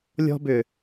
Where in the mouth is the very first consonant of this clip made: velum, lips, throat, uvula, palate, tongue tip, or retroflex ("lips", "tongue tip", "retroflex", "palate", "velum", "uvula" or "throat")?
tongue tip